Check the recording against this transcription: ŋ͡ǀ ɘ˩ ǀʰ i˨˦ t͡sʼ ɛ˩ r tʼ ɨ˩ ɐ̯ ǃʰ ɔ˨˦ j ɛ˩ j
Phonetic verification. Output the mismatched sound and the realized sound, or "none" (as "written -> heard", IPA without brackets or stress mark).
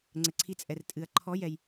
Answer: none